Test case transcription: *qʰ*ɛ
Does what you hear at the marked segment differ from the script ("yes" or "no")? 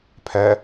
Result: yes